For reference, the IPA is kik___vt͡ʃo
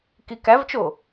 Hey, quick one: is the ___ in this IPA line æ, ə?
æ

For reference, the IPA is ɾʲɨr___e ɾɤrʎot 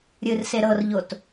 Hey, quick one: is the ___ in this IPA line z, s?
s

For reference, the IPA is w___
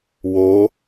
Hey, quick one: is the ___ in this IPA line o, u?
o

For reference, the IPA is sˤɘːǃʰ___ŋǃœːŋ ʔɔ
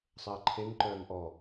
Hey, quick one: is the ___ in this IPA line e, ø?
e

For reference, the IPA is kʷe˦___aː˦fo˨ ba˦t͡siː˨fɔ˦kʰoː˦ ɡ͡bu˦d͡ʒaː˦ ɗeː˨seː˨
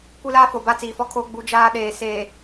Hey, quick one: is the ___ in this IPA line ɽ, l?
l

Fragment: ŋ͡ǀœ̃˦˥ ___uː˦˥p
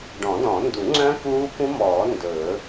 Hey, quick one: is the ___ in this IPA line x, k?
k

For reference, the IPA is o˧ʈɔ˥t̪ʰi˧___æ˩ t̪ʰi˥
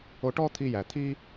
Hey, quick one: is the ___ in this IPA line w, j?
j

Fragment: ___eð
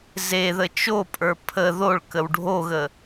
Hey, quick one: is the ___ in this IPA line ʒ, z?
z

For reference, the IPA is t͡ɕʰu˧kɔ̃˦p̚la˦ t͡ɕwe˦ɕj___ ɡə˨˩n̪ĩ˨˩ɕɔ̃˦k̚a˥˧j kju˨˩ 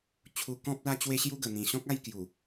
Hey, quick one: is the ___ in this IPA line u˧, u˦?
u˦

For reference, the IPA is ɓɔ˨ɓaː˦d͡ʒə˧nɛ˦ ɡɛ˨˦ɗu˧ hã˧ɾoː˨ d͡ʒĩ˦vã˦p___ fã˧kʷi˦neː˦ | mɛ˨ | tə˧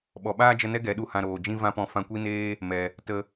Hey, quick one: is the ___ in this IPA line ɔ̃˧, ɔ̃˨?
ɔ̃˧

